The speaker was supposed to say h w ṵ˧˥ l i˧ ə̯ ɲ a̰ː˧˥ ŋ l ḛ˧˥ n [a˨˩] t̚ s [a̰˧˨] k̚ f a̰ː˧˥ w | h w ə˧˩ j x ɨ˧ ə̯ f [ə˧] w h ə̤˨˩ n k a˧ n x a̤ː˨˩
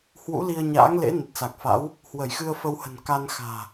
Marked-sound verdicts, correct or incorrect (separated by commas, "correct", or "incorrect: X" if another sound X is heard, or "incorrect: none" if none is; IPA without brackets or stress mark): incorrect: ə˨˩, incorrect: a˨˩, correct